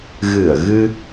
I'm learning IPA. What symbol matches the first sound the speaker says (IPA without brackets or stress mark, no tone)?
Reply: ɣ